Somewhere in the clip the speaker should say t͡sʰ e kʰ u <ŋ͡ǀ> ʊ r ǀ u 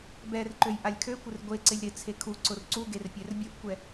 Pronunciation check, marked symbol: incorrect: ǀ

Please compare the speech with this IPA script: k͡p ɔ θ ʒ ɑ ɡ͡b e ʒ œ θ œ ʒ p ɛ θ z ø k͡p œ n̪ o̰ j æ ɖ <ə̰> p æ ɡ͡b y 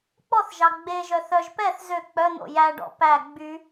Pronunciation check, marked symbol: incorrect: ɔ̰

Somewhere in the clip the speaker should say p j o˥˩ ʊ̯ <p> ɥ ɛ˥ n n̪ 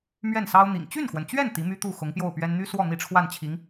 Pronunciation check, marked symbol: correct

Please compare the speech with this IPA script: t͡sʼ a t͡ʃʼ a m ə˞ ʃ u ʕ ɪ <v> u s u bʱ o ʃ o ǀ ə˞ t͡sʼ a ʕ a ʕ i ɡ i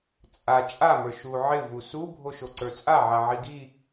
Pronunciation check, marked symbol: correct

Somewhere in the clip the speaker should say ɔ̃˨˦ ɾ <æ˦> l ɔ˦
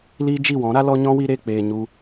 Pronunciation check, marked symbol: incorrect: a˦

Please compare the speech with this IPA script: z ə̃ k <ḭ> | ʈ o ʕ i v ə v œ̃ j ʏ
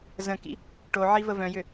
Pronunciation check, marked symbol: correct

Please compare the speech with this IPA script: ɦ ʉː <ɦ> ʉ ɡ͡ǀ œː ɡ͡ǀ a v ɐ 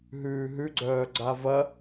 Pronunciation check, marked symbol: correct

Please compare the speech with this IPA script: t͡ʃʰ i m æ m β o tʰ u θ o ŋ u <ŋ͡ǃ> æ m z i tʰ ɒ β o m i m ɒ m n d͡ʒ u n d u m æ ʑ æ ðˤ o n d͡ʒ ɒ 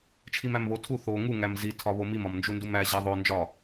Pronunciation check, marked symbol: incorrect: ŋ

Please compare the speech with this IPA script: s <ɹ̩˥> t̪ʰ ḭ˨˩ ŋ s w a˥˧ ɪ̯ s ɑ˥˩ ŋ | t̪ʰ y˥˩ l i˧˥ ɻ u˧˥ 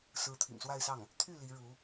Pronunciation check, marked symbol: incorrect: ɹ̩˧˥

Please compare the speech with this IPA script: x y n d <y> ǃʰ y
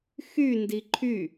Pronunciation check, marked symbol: incorrect: i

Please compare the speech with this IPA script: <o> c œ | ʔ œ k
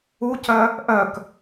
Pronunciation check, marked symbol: incorrect: u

